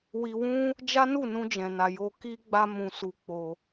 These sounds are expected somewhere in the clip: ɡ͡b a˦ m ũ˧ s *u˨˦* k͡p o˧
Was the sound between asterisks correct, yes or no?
no